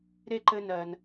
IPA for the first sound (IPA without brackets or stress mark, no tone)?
ɾ